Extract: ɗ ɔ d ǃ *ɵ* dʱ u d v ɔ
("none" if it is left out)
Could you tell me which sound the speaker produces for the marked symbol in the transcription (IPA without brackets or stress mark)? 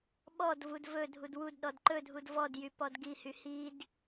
ɵ